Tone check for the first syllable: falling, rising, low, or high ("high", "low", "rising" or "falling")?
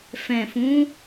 low